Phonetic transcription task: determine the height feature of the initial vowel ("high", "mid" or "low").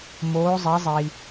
mid